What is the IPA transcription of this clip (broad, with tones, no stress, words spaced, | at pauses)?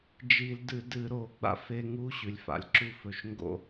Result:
d͡ʒi˧˩˧ldɨ˧˩˧dɨ˧˩˧ ɾo˧˩˧ɡ͡ba̰˧ fe˧ŋu˧ ɕʉ˩lʲfa̰˩lʲǁu˧ fɵ˩ʃŋɡo̰˧˩˧